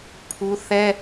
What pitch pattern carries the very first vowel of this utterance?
high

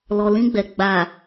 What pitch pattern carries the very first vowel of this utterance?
low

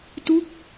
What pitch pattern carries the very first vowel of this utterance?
falling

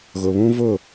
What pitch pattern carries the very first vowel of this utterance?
low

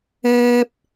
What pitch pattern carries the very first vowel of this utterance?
high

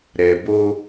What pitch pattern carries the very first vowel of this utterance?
low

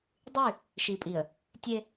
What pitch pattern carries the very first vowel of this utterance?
falling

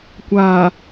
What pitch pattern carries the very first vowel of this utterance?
low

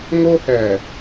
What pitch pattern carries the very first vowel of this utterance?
high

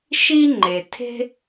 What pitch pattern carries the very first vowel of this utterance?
high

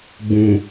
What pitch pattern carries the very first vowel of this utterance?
low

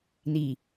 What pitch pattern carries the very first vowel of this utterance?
low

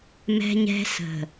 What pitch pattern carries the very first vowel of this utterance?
high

